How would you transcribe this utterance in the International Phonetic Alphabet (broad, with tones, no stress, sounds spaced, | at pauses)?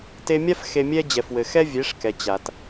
t e˧ mʲ a˥ f x e˧ mʲ ɛ˥ d͡ʑ ɛ˩ f w ɘ˩ x ɛ˥ vʲ e˩˥ ʂ k ɛ˩ t͡ɕ a˩ t